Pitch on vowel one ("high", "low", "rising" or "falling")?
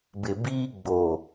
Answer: low